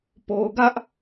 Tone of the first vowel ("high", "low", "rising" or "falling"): low